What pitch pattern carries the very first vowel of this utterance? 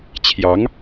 rising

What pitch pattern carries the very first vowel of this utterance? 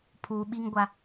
low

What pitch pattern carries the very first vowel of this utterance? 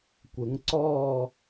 rising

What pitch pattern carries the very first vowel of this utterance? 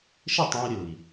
falling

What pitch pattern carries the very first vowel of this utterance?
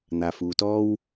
low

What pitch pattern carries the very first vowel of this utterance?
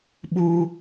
high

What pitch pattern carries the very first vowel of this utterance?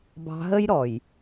low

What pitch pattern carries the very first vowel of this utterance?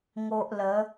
high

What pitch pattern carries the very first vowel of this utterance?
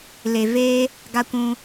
low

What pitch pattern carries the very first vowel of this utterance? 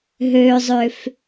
high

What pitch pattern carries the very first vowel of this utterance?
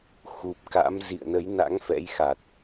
low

